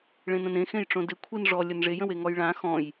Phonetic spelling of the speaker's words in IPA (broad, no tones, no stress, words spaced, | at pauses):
ɭẽnə̃nẽ xẽjʈ͡ʂõdɪ kʷʰinʐɔ lʲənʐej ə̃weŋɔjɭã xɔ̃j